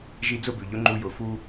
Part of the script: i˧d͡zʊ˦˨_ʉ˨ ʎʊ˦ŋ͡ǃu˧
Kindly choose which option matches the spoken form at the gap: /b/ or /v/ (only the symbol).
b